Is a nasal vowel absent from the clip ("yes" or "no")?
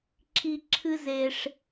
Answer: yes